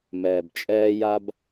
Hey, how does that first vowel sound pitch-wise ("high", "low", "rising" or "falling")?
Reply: low